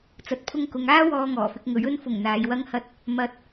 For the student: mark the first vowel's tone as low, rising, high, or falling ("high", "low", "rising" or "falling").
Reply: low